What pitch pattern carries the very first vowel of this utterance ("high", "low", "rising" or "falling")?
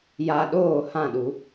low